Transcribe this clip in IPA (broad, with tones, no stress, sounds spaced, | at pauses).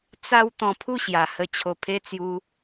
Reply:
t͡s a˧ w t̪ ɔ̃˧ pʰ u˥˧ ɕ j a˨˩ h ə˧ t͡ɕʰ o˨˩ pʰ e˧ t͡s j u˧